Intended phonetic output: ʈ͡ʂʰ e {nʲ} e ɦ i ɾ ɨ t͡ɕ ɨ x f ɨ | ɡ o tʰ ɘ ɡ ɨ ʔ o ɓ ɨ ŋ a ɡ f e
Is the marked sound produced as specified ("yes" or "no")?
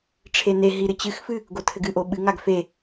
no